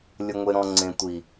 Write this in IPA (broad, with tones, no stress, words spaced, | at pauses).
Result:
lʲə˨ŋʷe˨ɾɔ̃˨ ŋ͡ǀẽ˨tʷi˨